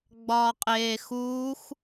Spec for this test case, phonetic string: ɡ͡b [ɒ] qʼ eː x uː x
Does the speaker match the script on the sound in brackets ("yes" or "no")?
no